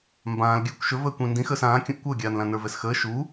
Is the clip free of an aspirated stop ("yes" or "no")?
yes